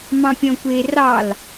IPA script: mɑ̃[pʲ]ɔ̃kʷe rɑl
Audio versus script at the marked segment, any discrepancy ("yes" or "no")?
no